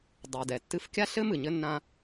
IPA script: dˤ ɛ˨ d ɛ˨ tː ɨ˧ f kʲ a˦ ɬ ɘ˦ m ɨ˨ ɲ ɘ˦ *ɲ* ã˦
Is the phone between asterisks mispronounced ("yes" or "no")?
yes